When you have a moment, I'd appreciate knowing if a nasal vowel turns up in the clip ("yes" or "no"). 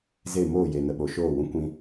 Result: yes